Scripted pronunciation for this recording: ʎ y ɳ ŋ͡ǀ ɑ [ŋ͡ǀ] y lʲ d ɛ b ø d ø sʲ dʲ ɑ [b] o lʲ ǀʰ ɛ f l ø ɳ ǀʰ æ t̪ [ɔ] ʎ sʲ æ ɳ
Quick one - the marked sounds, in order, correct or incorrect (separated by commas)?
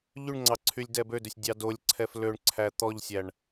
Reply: incorrect, incorrect, correct